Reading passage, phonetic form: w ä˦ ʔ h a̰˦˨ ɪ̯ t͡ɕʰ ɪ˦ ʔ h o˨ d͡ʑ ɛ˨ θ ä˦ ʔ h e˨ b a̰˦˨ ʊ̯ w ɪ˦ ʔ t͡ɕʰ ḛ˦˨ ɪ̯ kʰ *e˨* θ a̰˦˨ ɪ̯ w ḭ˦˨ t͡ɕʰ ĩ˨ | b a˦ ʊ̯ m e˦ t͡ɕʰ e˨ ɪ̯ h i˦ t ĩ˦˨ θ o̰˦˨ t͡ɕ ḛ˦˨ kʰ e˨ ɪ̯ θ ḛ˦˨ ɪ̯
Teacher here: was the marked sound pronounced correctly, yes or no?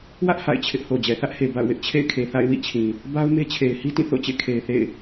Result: yes